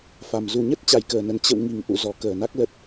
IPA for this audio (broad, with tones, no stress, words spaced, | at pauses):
fa˨˩m zu˨˩ɲə˦˥t̚ t͡ɕa˨˩jkəː˨˩nə˨˩n t͡ɕə̰˧˨w ŋi˨˩ŋʔṵ˧˨ zɔ˨˩ kəː˧˩na˦˥k̚lə˦˥t̚